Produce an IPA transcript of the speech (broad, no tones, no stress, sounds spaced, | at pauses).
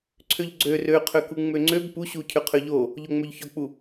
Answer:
ǀʰ ø ʎ ɡ͡ǀ ø r ø qʰ ø k u ŋ͡m ø ŋ͡ǀ ø b p u ɕ u cʰ ø qʰ ø ʎ o | ʎ o ŋ͡m ø ʎ ç ɔ k͡p u